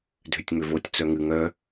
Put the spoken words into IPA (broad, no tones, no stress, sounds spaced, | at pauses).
dʱ ʏ tʲ ŋ͡m ʏ v o tʲ t͡s œ ŋ ɨ ŋ œ